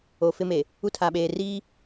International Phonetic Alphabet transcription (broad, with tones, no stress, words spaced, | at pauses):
o˨fɪ˦me˨ | u˦tʰa˨ɓeː˨ riː˦